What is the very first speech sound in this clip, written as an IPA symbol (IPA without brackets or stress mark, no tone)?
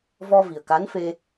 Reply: v